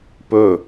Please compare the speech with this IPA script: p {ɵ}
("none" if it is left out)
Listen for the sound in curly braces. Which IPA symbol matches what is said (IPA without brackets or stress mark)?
ɵ